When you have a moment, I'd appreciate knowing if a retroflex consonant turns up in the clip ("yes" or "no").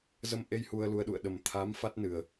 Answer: no